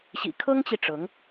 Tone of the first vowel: low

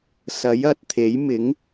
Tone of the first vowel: rising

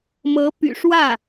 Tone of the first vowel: rising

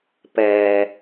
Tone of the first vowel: low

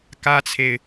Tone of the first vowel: high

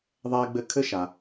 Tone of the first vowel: high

